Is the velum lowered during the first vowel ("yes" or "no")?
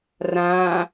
yes